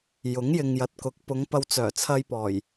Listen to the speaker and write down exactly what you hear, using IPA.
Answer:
jʊ˨˥ŋjɪ˨ŋjɐ˨t̚kʊ˨˥k̚ pʊ˨˧ŋ pɐ˧wt͡sœː˨˩t͡sʰɐ˧jpɔː˨˩j

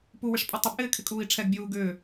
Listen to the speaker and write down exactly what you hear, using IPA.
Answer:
puwɪʂpʼʏ tˤɪbʔɪːkʰɪkʼuːi̯ ʈ͡ʂʰɛɡbʲuː ɡʏː

